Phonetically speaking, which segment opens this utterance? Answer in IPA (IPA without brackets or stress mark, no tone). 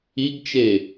i